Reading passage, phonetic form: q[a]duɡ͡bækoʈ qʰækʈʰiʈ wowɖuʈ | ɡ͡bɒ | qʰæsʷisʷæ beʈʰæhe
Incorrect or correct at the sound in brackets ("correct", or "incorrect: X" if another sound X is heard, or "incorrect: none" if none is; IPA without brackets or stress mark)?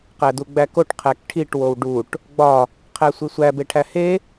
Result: incorrect: æ